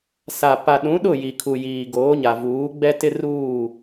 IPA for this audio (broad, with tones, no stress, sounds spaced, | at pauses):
s a˨ p a˨ ɗ ũ˨˦ ɗ ʊ˦˨ j i˨ kʰ u˨ j iː˨ ɡ oː˨˦ ɲ a˨ v uː˨˦ ɡ͡b ɛ˦ t ɪ˦ r uː˦˨